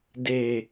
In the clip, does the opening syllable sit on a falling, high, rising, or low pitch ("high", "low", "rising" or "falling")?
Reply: low